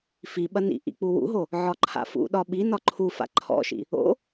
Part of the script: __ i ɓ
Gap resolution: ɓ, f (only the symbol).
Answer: f